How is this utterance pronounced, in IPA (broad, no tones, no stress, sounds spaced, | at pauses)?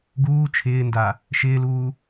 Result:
ɡ uː t͡ʃʰ ɪː n d a | ʃ ɪː l uː